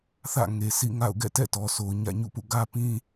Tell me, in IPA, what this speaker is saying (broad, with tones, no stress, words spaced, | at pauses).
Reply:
θä̰˦˨ŋe˨ sʰḭ˦˨ŋa̰˦˨ʊ̯ ɡɛ̰˦˨tɛ̰˦˨tɔ˨sʰo˨ʊ̯ ɲä̰˦˨ɲṵ˦˨pṵ˦˨ ɡä˦pĩ˦